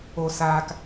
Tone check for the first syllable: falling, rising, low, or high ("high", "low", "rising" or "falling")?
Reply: low